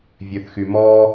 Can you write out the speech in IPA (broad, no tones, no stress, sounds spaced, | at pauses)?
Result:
vʲ ø θ x y m ɔ